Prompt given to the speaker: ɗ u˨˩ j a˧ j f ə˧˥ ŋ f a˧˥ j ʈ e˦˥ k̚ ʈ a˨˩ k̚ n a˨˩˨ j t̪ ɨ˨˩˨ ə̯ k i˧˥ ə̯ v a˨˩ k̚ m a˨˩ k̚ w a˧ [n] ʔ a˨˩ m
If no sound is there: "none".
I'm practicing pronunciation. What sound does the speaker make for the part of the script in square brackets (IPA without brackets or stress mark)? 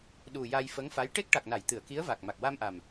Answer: m